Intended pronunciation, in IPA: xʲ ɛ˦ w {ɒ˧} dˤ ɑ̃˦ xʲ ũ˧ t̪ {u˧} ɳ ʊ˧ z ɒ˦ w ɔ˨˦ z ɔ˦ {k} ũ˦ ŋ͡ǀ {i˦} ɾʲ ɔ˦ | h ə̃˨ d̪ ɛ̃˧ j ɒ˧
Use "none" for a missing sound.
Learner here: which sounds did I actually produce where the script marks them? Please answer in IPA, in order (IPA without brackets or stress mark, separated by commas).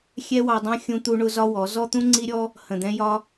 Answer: ɑ˧, u˧, t̪, i˦